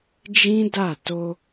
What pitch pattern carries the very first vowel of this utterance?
high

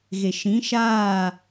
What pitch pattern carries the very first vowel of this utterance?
low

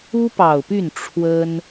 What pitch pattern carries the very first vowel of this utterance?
high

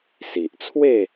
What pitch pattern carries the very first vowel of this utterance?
low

